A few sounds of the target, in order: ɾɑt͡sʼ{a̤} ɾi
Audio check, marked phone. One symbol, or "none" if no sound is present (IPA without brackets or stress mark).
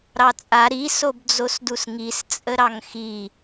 a